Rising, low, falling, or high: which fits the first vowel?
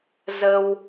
high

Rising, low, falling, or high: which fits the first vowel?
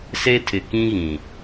high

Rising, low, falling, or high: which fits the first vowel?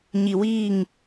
low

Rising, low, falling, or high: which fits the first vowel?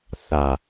low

